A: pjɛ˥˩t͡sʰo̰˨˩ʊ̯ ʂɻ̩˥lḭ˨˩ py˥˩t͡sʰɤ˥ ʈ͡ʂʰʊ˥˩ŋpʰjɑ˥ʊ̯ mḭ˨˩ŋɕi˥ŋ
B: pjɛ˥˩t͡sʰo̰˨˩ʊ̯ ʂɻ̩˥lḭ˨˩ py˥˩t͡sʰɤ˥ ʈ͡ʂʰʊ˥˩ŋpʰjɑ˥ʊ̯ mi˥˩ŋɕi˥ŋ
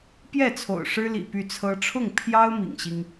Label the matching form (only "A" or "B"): A